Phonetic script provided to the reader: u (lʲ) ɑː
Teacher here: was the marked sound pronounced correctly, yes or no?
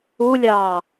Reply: yes